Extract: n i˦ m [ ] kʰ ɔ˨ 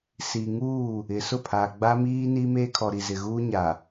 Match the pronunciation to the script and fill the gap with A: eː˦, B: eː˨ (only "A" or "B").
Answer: A